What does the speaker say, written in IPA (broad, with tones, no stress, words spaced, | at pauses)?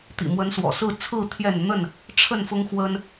t̪ḭ˨˩mwə˨˦nswɔ̰˨˩sɹ̩˥˨ t͡sʰɹ̩˥˨ t̪ʰjɛ˥˨n n̪ə˥˨n | ʈ͡ʂʰə˥˨nfʊ˦ŋxwə˦n